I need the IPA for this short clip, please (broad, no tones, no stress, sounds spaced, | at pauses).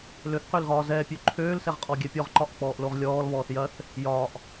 l ø θ q ø l ɣ ɒː z ɛː pʲ ø ǃʰ øː l s ɛ ʁ qʼ ɔ ɡʲ ɛ pʲ ɔ ʁ ǃ ɒ ʔ k͡p ɔː ʔ l o ʁ lʲ ɔː l β ɔː θ j ɐ θ | j ɒː ʔ